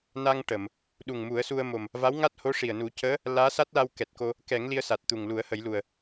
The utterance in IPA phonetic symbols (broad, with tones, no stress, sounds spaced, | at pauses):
n a˧ ŋ ʈ ə˨˩˨ m | ɗ u˨˩ ŋ m u˨˩˦ ə̯ s u˧ ə̯ m o˨˩ m | v a˧˥ w ŋ a˦˥ t̚ h o˧˥ ʂ i˨˩ ə̯ n u˨˩˦ c əː˧˥ | l aː˧˥ s a˦˥ t̚ l a˧ w k ɛ˨˩ t̚ k o˧ | k ɛ˨˩˦ ŋ l i˧ ə̯ s a˨˩ t̚ t̪ u˨˩ ŋ l u˨˩˦ ə̯ h ə˨˩˦ j l u˨˩ ə̯